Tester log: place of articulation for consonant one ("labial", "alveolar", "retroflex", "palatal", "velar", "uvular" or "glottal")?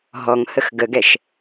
glottal